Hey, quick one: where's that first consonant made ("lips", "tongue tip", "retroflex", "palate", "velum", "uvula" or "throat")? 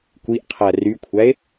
velum